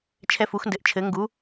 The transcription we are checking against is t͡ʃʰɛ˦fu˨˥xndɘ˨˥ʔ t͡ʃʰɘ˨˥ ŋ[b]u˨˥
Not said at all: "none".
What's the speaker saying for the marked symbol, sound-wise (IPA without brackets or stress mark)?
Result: ɡ